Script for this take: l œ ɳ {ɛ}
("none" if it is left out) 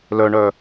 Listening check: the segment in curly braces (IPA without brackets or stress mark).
œ